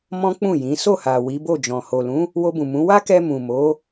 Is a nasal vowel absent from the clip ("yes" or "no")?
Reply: no